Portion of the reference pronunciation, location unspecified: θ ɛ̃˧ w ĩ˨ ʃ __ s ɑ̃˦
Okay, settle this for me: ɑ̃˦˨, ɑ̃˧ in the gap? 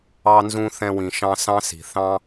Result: ɑ̃˧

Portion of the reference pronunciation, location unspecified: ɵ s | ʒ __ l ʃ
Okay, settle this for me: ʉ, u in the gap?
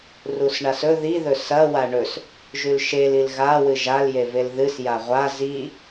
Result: ʉ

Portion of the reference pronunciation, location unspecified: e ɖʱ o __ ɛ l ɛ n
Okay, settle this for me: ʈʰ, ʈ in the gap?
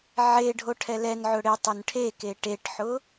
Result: ʈʰ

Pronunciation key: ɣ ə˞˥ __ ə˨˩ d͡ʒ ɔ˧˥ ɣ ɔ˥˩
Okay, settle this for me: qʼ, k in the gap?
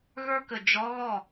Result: k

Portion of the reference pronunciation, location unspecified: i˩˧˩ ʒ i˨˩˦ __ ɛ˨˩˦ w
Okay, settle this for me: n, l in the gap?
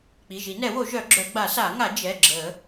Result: n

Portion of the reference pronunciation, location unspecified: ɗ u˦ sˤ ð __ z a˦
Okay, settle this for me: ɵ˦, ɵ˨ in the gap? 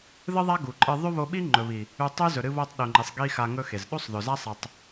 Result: ɵ˨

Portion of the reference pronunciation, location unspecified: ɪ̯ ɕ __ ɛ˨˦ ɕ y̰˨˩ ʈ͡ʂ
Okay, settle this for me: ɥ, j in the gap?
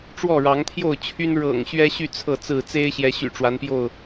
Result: j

